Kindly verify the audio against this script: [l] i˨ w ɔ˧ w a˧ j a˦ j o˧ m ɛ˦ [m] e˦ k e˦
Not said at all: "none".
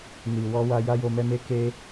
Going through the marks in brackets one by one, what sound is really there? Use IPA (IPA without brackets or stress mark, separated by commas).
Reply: n, m